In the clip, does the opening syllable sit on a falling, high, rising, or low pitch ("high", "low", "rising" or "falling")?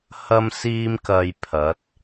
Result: high